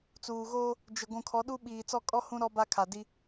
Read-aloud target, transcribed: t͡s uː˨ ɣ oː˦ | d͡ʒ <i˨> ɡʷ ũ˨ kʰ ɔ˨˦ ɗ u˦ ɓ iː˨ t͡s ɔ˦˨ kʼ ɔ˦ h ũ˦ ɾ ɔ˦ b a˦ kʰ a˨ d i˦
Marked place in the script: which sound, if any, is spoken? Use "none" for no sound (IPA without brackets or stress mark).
ɪ˨